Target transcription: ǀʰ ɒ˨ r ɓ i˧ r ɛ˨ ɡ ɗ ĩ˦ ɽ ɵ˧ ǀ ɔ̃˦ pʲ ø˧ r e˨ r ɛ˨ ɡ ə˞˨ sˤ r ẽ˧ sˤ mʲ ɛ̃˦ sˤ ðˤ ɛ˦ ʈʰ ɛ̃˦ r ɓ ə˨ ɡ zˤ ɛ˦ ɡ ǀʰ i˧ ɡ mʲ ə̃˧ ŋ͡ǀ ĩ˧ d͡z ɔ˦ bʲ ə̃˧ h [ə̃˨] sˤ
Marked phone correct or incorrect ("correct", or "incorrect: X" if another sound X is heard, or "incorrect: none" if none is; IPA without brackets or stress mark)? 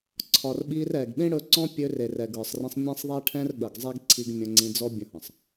correct